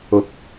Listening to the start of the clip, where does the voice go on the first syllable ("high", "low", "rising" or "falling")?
rising